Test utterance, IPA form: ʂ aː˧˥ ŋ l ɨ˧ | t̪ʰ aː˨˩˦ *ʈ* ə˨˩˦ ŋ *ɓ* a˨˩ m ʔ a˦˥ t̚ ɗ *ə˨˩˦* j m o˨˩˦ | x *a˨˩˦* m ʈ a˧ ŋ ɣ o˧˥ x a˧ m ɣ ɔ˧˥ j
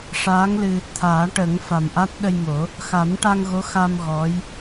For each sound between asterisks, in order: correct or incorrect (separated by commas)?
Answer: correct, incorrect, incorrect, correct